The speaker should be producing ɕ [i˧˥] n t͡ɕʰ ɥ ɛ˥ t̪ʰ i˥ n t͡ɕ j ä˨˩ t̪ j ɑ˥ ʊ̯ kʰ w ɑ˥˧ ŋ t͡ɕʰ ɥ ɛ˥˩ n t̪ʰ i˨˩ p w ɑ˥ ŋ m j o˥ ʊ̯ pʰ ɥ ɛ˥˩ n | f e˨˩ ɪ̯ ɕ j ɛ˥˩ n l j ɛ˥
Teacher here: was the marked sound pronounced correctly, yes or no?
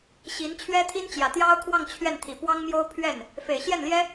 yes